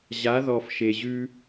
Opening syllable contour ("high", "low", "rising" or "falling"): rising